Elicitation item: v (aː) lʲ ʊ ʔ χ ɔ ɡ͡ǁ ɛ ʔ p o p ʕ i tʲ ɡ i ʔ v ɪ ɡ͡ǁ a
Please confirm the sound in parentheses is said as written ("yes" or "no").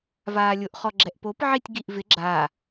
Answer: yes